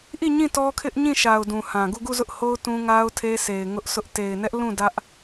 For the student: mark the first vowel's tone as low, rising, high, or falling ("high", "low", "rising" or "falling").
falling